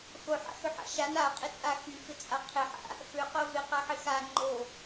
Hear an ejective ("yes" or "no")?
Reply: yes